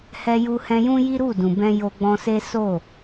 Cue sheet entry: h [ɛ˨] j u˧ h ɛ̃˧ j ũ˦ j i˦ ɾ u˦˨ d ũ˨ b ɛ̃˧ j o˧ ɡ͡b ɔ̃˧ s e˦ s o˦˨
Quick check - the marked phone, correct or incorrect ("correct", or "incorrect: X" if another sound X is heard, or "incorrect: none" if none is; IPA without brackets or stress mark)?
incorrect: ɛ˧